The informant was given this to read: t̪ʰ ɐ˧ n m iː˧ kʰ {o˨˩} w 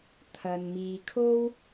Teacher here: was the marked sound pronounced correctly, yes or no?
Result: no